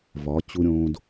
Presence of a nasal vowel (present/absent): present